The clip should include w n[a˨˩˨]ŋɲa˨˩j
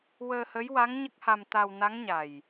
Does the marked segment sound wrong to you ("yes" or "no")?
yes